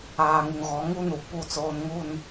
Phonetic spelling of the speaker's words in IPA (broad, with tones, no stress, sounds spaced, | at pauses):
aː˨ ŋ u˨ ŋ ɣ ɔ˨˦ ŋ u˦ n u˨ p u˦˨ t͡s oː˦ n ŋ u˦˨ n